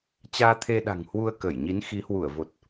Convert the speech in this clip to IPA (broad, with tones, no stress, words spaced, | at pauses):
t͡ɕaː˧t̪ʰe˧ɗa̤˨˩ŋ hwu˧ə̯kə˧˩jɲi˨˦n xi˨˦hwu˧˩ə̯vo˨˩t̚